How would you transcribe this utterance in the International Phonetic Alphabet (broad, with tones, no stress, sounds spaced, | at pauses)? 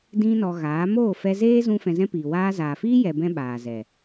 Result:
d ĩ˦ n ɔ˧ ɣ aː˨˦ m oː˦˨ f ɛ˧ z eː˦ z ũ˧ f ɛ̃˧ z ɛ̃˦ p iː˨ w aː˧ z aː˨ f iː˦ j ɛ˧ b ɛ̃˦ ɓ aː˨ z ɛ˨